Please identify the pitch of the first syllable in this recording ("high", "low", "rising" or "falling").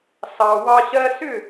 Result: low